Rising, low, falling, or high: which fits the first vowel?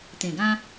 low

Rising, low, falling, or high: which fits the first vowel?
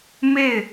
falling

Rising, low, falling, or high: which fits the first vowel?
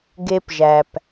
high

